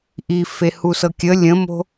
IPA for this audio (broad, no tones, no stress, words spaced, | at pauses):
ʔi fehusɤkʲə lʲə̃mo̤